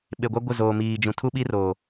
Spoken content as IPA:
ɓ e˨ ɡʷ a˦ ɡʷ ɪ˦˨ z oː˨ m iː˨ d͡ʒ ũ˨ tʰ u˦ ɓ i˦ r o˨

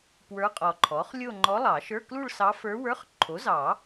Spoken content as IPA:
p w ə˞˧˥ qʼ ɔ˨ ǃʰ ɔ˩˥ χ lʲ o˥˧ ŋ͡ǃ ɔ˧˥ lˠ ɑ˨˩˦ ʃ ə˞˧˥˧ k l u˥˧ ɭ s ɑ˧˥ f ə˞˧˥ w ə˞˧˥˧ χ ǃʰ o˩˥ z ɑ˨˩˦

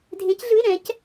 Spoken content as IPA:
dʱ ẽ˧˥ c ɮ ɯ˧˥˧ ɪ̯ ɾ ɛ̃˧˥ c

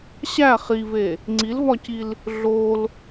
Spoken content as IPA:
ɕ æ χ i v e | ŋ͡ǀ i l v ɒ c i l | ɮ o l

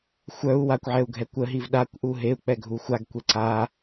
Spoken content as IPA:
xʷ œ u̯ w a kʷ ʕ ɛ u̯ ɡʱ ɛ kʷ ə ɦ i v ɗ a kʷ ʔ u ɦ e u̯ k͡p ɛ ɡʱ u xʷ a ɡ kʷ e ǀ a

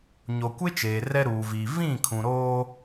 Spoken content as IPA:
ɲ o˨ kʷ e˦ t͡ʃ eː˨ r ɛ˦ ɾ uː˨ v iː˨ v ĩ˦˨ kʰ ũ˨ ɾ oː˦

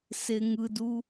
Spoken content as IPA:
s e ŋ ɯ d u

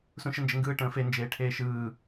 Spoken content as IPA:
s ũ ʃ ə n d͡ʒ ɘ ŋ ɡ ɯː ʈ ə̃ː f e n d͡ʒ eː ʈʰ eː ʃ ɯː

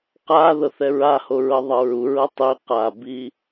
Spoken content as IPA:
q a ð ɤ θ ɛ ɹ a h o ɹ ɤ ðˤ ɤ ɹ u ɹ ɤ tˤ i q a b i

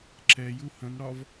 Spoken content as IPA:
ǁ ɛ j u h ə̃ n ɽ ɒ v

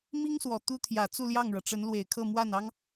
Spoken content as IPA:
m i˥ ŋ s w ɔ˨˩ t̪ u˥ t̪ʰ j ä˨˩ t͡s u˥˧ l j ɑ˥˩ ŋ ɻ ɤ˩ ʈ͡ʂ ə˧˥ n l w e˨˩ ɪ̯ kʰ ɤ˥˧ m w a˥˩ n ɑ˥ ŋ

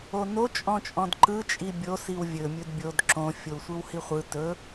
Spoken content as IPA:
o n o t͡ʃʼ ɔ̃ t͡ʃʼ ɔ̃ d ǃ ɯ t͡ʃʼ i bʲ o s i w vʲ ɵ mʲ ɵ d bʲ o d ǁ õ fʲ o w sʷ ɯ w h i χʷ ɯ t ɵ

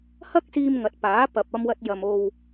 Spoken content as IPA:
h ɐ˥ k̚ s iː˧ m ŋ ɐ˨˥ t̚ p aː˨˥ p ɐ˨ p̚ ɐ˧ m w ɐ˧ t̚ j ɐ˨ m o˨ w

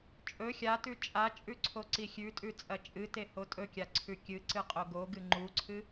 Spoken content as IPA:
t͡ʃʼ ɵ xʲ a t ʉ t͡ʃʼ a t͡ʃʼ ʉ ǀʰ o ǀ i xʲ ʉ tʼ ʉ t͡sʼ ɐ t͡ʃʼ ɨ t e h o tʼ ɵ kʲ a ǀʰ ʉ kʲ ɨ ǀ ɨ qʼ o ɡ o ɡ ɨ ŋ͡ǃ u ǀʰ ɨ

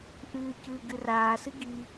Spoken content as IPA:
ʔ ɨː c ɨː ɡ ɨ r aː s ɨ ɡ i

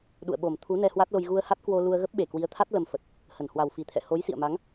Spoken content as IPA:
ɗ ṵ˧˨ ə̯ ɓ o˨˩ m t̪ʰ u˨˦ n ɛ˧ h w a˦˥ t̚ l o˧ j ɣ u˧ ə̯ h a˦˥ t̚ k w o˧ l u˧ ə̯ ɣ ə˦˥ p̚ ɓ e˨˩ k w i˨˦ ə̯ t̪ʰ a˦˥ t̚ l ə˧ m f ə˨˩ t̚ | h ə˧˩ n h w a˨˩ w f i˧˩ t̪ʰ ɛ̰˧˨ h o˨˦ j s ḭ˧˨ ə̯ m a˨˦ ŋ

